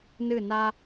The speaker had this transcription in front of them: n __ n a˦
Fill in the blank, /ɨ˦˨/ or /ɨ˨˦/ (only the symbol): ɨ˦˨